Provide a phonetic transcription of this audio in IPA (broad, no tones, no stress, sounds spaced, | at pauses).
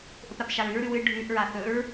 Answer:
ʔ ɵ p ɾ a p ʃ a ɹ ʉ ɹ ɾ ʉ w ɨ ɖʱ ʉ ʔ ɹ a θ ɵ ɹ